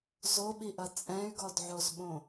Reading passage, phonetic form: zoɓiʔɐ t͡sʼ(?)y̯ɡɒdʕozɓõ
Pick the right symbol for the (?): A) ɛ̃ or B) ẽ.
A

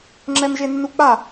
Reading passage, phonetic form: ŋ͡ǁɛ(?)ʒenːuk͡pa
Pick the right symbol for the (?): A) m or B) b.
A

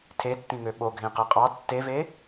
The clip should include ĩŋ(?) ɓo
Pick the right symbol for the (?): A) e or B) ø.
B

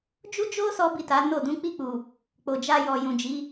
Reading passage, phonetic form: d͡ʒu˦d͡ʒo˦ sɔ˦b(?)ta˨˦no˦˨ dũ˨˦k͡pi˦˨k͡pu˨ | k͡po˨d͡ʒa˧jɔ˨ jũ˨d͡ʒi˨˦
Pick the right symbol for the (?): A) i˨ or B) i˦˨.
B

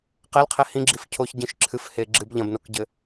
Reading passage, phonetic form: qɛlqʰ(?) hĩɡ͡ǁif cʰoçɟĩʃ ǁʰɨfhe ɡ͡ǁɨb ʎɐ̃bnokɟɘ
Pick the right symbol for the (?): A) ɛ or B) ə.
A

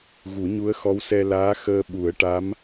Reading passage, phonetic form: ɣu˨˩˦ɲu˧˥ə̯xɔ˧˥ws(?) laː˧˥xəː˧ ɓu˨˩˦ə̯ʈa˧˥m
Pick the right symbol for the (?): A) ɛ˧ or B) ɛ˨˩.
A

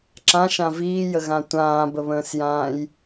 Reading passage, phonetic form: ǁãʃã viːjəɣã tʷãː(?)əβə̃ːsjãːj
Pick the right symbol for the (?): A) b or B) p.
A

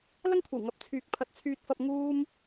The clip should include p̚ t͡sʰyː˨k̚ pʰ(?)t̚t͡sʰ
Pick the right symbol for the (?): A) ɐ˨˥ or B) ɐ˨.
A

